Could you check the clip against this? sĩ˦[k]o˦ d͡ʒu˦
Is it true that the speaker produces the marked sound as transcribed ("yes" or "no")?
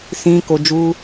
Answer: yes